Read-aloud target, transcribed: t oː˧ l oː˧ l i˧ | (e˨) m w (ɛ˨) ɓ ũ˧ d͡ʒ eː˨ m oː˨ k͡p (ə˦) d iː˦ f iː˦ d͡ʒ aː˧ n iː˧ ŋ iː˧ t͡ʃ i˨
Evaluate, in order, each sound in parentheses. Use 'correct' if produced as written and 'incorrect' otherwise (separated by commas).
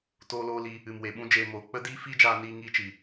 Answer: incorrect, incorrect, correct